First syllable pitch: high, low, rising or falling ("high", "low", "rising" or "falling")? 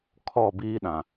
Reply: falling